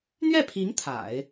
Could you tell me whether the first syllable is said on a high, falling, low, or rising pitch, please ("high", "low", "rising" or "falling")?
falling